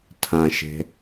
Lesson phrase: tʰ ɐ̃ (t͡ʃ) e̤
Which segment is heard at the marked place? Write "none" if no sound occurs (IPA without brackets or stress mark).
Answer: ʃ